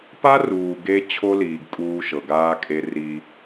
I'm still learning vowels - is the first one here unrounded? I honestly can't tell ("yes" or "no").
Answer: yes